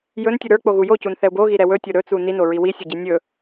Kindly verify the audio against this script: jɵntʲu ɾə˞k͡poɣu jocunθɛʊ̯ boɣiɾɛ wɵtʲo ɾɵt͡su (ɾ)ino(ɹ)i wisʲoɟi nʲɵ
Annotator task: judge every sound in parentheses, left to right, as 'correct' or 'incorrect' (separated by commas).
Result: incorrect, correct